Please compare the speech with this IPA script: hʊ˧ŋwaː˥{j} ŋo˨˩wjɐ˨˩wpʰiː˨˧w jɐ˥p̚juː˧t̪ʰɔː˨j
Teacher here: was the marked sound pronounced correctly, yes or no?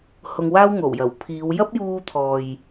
no